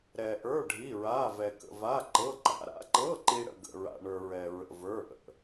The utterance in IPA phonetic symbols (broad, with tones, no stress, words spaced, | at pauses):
ɾɛ˧ʔə˞˧˥˧ ɖʱi˧˥˧ɹa˧˥˧vɛ˧ kə̰˧va˧˥˧ǃɤ˧˥˧ǃa̰˧˥˧ ɾa̰˧˥˧ǃɤ˧˥˧ǃi˧ ɽə̰˧ɡə̰˧ɹa̰˧ɳə˞˧ ɹɛ˧ɹə̰˧və˞˧˥˧ ʔə̰˧